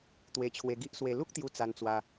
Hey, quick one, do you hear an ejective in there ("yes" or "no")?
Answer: no